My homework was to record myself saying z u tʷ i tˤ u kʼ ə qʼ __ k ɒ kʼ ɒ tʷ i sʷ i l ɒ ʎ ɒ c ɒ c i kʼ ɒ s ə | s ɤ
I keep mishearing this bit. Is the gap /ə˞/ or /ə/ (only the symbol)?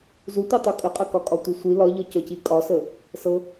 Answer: ə